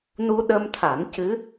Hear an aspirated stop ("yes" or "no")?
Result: yes